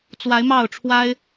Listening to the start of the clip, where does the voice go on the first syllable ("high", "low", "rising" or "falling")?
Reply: rising